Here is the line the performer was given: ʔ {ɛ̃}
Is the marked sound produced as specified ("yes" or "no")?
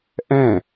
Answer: yes